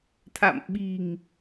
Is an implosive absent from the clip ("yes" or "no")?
no